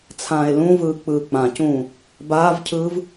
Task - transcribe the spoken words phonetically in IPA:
t͡sʰ ãː e̯ l ũ v ɯː k͡p ɯː k͡p ã c ũː | b aː v cʰ ɯː v

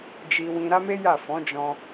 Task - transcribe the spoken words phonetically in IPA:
d͡ʒ i˧ w ĩ˧ ɾ a˦ m e˦ j a˦˨ f ɔ̃˨˦ d͡ʒ ɔ̃˧

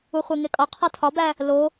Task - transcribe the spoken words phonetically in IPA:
u χʷ e ŋ e kʼ ɒ qʰ ɒ tʰ ɒ b æ | l o

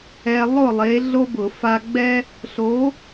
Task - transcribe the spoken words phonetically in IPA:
ɛ˧ lˠ ʊ˥˨ lˠ e˨˥ ɮ o˥ b ʊ˧˩˧ f a˧ ɡ͡b ɛ˥ | ɬ o˨˥

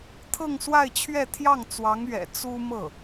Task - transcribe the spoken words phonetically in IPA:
t̪ʰ ɤ˥˧ ŋ s w a˥˧ ɪ̯ t͡ɕʰ ɥ ɛ˥˧ t̪ʰ j ɑ˥˩ ŋ t͡s w ɑ˧˥ ŋ ɥ ɛ̰˨˩ t͡s u˥ m ɤ˥˩

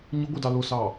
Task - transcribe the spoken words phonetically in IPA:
ɲ ʊ ɡʷ i d ɑ l ʊ s ɑ

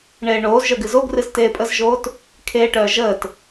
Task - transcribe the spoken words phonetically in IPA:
ɳ eː ɳ oː z ʒ œ ɡ ɨ z o ɡ r ɨ z t eː pʼ ə z ʒ oː t | kʰ eː ʈ œː ʒ əː t

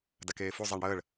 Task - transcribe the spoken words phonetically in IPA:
d a k eː f u zˤ æ ɳ ɽ əː ɭ

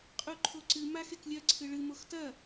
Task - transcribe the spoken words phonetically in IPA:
qʼ u ǃʰ o ǀ ɨ m a x e k lʲ ɐ ǀʰ ɨ ɭ ɨ m o x t ɐ

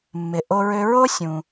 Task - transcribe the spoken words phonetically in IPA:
mː ɪ˩ ʔ o˧ ɹ ø˧ ɹ o˥ sʲ ũ˩

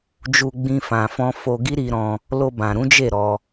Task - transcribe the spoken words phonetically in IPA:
d͡ʒ u˧ ɡ͡b ĩ˧ f ã˨ f ɔ̃˧ f o˧ ɡ i˦ ɾ i˧ ɾ ɔ̃˧ | l o˧ b ã˨ ɾ ũ˨˦ d͡ʒ e˦˨ ɾ ɔ˧

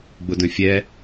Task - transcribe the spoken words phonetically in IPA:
ɡ͡b ʊ d œ̃ fʲ ɛ

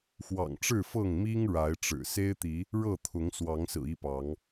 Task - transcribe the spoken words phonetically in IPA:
x w ɑ̰˨˩ ŋ ʈ͡ʂ ɻ̩˥˨ f ɤ˥˨ ŋ m i˦ ŋ ɻ a˨˦ ɪ̯ ʈ͡ʂ ɻ̩˨˩ s e˦ ɪ̯ t̪ i˨˦ | ɻ ɤ˥˨ t̪ʰ ʊ˨˦ ŋ s w ɑ˨˦ ŋ s ɹ̩˨˩ i˥˨ p ɑ˨˦ ŋ

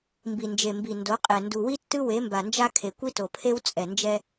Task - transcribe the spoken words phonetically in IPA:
m b i˨ n d͡ʒ e˨ m b i˨ n d o˨˦ qʼ ɛ˨ n d u˨ w i˦ tː ɯ˦ w e˨˦ m b a˨ n d͡ʒ a˦ kʰ e˨ kʷ i˦ t o˨ pʰ e˦ w t͡sʼ ɛ˨ n d͡ʒ ɛ˦

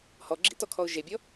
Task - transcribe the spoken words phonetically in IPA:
h ɔ ɡ͡ǁ ḭ t ɔ kʰ ɔ ʊ̯ ʒ e bʲ ɔ

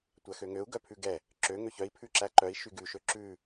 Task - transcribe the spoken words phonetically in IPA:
tʷ æ x ø ŋ ø u̯ ɡ œ pʰ ʉ ɡ ɛ | ǁ ø ŋ ø ç œ i̯ pʰ ʉ ǁ æ ǃ œ i̯ ʃ y ɡ ʉ ʃ ø ǁ ʉ

